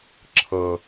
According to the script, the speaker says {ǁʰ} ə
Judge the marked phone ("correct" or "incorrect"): correct